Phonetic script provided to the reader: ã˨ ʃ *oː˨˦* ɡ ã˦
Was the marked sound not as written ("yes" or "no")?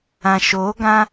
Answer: no